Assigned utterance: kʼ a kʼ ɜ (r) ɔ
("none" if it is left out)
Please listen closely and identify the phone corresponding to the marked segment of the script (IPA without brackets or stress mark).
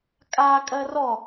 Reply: r